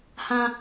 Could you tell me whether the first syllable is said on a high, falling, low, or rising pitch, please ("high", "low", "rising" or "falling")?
high